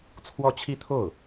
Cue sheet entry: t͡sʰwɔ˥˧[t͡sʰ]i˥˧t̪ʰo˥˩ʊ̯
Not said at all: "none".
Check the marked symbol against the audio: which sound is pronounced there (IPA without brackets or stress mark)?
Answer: t͡ɕʰ